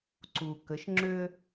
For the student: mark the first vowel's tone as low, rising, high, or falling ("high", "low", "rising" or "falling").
low